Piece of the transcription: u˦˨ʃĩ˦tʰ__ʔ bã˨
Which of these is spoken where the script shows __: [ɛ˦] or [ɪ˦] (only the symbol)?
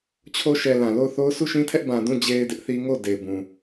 ɛ˦